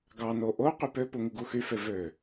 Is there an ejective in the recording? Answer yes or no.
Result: no